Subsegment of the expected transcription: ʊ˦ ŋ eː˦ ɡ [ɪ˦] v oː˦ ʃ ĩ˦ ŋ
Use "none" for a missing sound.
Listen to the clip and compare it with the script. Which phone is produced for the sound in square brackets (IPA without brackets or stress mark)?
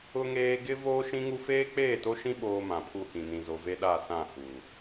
ɪ˦